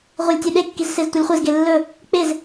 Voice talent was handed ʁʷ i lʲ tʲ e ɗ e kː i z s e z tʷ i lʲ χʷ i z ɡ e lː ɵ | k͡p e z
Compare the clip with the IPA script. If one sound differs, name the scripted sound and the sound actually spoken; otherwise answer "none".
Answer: none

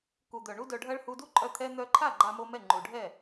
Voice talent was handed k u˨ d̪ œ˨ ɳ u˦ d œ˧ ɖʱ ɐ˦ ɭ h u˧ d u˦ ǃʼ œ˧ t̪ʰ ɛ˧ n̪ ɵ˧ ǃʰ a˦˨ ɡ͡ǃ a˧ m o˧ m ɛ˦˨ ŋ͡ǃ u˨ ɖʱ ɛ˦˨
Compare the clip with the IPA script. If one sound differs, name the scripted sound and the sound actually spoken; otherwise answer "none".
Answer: ɵ˧ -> œ˧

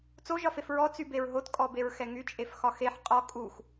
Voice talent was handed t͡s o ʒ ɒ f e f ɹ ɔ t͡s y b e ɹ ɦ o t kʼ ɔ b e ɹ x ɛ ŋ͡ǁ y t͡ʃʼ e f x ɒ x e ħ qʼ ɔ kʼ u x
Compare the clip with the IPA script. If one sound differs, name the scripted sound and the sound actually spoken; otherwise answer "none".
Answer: ŋ͡ǁ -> ŋ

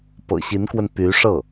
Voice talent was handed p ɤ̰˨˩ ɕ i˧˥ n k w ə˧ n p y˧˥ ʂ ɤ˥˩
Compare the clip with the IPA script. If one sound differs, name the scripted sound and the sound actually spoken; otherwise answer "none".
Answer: none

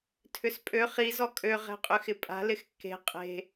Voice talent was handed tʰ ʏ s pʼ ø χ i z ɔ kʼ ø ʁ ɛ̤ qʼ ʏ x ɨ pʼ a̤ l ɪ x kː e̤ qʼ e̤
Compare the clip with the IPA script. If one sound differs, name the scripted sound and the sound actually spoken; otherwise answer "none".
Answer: ɨ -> ɪ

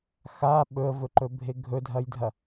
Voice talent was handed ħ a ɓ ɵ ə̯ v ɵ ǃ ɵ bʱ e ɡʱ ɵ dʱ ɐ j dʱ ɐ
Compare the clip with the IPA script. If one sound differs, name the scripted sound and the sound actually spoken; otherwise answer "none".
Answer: ħ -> x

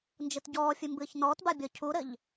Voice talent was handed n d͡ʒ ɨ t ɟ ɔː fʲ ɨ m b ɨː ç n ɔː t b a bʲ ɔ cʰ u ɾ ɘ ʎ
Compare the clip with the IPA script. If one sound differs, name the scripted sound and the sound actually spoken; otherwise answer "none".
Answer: none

